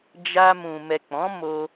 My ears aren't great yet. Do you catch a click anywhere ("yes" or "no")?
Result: no